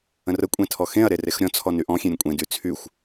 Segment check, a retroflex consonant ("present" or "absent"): absent